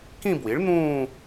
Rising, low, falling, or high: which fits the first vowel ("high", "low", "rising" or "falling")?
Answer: falling